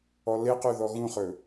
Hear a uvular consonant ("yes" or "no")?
yes